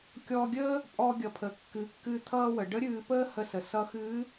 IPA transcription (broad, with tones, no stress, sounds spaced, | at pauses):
kʲ ɔ˧ ɡʲ əː˥ | pʼ ɔ˧ ɡʲ ʌ˩ pʰ ə˩ kː ɨ˩˧ kː ɨ˧ t̪ʰ ʌː˧ w ə˩ ɖ ə˧˥ ɾʲ ɨː˧ p əː˥ h ə˧ s ə˩ s ʌ˧˥ x ɨː˧˥